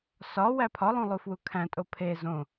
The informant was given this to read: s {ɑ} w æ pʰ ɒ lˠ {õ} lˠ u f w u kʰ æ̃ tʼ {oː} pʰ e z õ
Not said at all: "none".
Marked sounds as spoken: ɒ, ũ, o

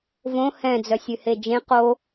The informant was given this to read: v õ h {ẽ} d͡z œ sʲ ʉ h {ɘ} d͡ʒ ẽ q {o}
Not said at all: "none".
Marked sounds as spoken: ɛ̃, e, o

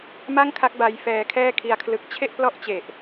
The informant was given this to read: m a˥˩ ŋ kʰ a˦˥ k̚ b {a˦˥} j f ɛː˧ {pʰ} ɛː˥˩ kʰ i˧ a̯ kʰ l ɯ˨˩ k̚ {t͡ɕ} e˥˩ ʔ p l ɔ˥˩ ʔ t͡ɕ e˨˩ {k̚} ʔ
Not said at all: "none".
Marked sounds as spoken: a˧, kʰ, t͡ɕʰ, none

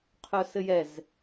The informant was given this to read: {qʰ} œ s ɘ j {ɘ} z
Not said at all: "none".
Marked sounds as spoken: qʰ, ɛ

